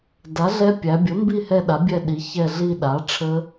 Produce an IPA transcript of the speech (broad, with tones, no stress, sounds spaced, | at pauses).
d a˩˥ ɮ ɛ˦˥ pʲ æ˩˧ bʲ ə˩˥ m b i˦˨ h ɛ˦˨ ɗ a˩˥ bʲ ɛ˦˨ ɗ i˩˧ ç ɛ˦˨ ɮ i˦˨ ɗ a˩˥ ʈ͡ʂʰ ə˦˥